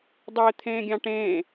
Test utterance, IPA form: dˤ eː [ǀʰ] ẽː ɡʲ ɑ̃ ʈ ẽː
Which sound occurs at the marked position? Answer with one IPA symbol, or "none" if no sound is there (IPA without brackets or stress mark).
t̪ʰ